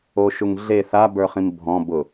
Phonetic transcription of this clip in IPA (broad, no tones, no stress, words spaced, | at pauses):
oʃuŋ ɮe θabə˞χĩm bʱɔ̃ bʊ